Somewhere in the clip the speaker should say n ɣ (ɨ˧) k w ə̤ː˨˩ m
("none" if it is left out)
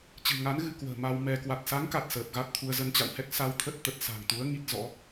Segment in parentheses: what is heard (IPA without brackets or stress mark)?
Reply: ɨ˧